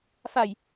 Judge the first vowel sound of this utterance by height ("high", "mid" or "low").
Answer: low